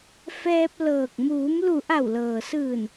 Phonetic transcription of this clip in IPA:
fɛː˧p̚ lɤː˧˩k̚ muː˩˧mlu˧˩ ʔa˧˩wlɤː˩sɯː˧˩n

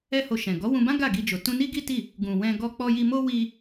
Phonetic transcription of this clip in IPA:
ɛ˦ho˧ʃɛ̃˨ ɡɔ˨˦wũ˧bã˦ ɡa˦˨ɡi˧d͡ʒo˨ tũ˧ni˦ɡi˦ti˦˨ | ɡũ˨wɛ̃˧ ɡɔ˧ k͡pɔ˧ji˧mo˦ wi˧

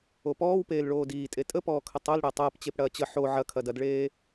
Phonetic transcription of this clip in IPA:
opɔːwpeːl ɭoːdiːtʼe tʼəpɔːkʰə tˤol ɽəːtˤɐːpt͡ɕep ɽɐːt͡ɕə ħo ʕɐkʰɐdɐdɭeː

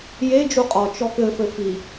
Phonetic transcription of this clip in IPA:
je d͡ʒuqʼɔ t͡ʃɔkɘ fɘfi

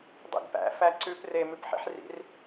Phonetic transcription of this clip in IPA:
dˤḭɡpæ̰ fæǀʉp re mʉpħḭħrḭr

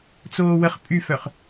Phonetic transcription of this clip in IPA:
t͡soːwəχ pʼyfœχ

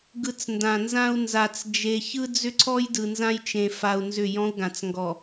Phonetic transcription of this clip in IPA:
ɡɯ˨t͡s ndã˨nzã˦u̯ nza˨t͡sd͡ʒe˨ çɯ˦d͡zʏ˦ǀʰɔ˦j dɯ˨nzã˦j t͡ʃẽ˨fa˨u̯ nzʏ˦˨jɔ̃˦u̯ɡã˨t͡s ŋɡɔ˨

